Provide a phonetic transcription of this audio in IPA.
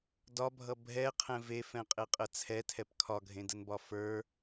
dɒbʱʌ bʱɛqʰɛ̃ vefɛ̃qʼeqʼə t͡sʰɛtʰɛp kʰɒɡʱẽdənbɒ fə˞

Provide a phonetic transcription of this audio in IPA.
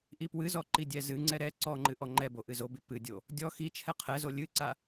ʔipwɨzɔ ǃidʲɛzɨŋ͡ǀɛ ɾɛ ǀɔŋ͡ǃɨ ʔɔŋ͡ǃɛbo ʔɨzobi pɨdʲo | dʲɔ xit͡ʃʰɛ qʰɛzo lʲɨǀa

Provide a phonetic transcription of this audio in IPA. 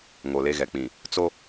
ŋo˨le˦˨ɣɛ˨k͡pĩ˨ | t͡so˦

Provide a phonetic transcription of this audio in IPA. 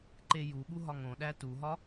ǃejuɠu ɦɒŋõɗæ tuɦɒ

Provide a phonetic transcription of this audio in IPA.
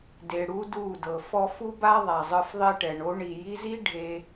de˨ɽu˦du˦˨dɤ˨ fɔ˧fu˦ba˦ ðˤa˨zˤɯ˧fðˤe˦ʈɛ˨ɳ o˦ɳi˨ ji˧zi˦ ɖʱe˧

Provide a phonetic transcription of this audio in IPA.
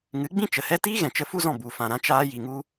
ŋɨ˨˦ɡ͡bĩ˦t͡ʃə˨hɛ˦ tiː˦ɣɛ̃˨t͡ʃə˧ fu˦zɔ̃˦˨ bu˨fã˨ ɾã˧ t͡ʃaː˧ji˨ŋu˧

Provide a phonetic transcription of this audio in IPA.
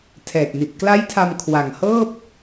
tʰɛː˨˩k̚ni˨˩t̚ kla˦˥jtʰa˧mkʰwa˨˩ŋ hɤː˥˩p̚

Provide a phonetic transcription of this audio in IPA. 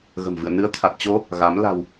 ɣə̤˨˩mvɨ̰˧˨ə̯ nɨ˨˦ə̯t̪ʰa˨˩t̚t͡ɕo˧ | ɣa˨˦m la̤˨˩w

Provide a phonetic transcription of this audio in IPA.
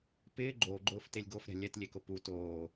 pɪː ɡ͡ǃoːɡ͡ǃʊːftelʲ ɡofɾʲa̤ lʲɛtlʲekʊ pu toː

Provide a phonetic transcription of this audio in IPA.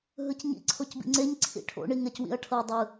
ɦɯcɲḭ ǀʰocbḭŋ͡ǀeɲ ǀʰḭʈʰo̰ ɳiŋɛcwḭɐ̯ʈʰɤ dˤɯ

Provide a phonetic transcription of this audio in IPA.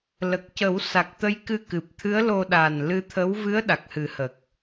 lə˨˩k̚cə˨˩˦w sa˨˩k̚t̪ə˧˥j kɨ˧kɨ˨˩p̚t̪ʰɨ˧˥ə̯lo˧ ɗa˨˩nlɨ˧t̪ʰə˧˥w vɨ˧˥ə̯ ɗa˨˩k̚hɨ˨˩˦hə˨˩k̚

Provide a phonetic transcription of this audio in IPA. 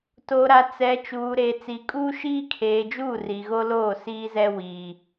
to˨ɾa˨t͡sɛ˨ t͡ʃuː˨ɾeː˨ t͡si˨kʼuː˦ ʃiː˦kʰeː˨d͡ʒuː˦˨ ri˨ɣo˦loː˦˨ siː˦zɛ˦wiː˨

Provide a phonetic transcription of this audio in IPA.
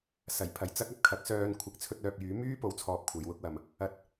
sɐ˨˩j pʰɐ˨jt͡sɐ˥k̚ɐ˨p̚ kʰɐ˨˥k̚sœː˧n kʷʰɪ˨˥k̚t͡sʰɵ˧t̚œː˨p̚jyː˨˥ myː˥po˨˧wt͡sʰɔː˨p̚ kʷʰɐ˨˧jwʊ˥k̚wɐ˨m | ɐ˧t̚

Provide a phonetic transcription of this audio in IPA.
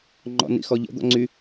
ŋ͡ǃɔ̰nḭxɔʎə̰ d̪ɔ̰ŋ͡ǀy

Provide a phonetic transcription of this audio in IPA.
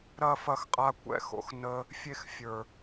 ɾɐ˦˨fɐ˧xqʼa˧ kʷɛ̰˧xo̰˧xnə˧ | fʲe˧xfʲə˞˨

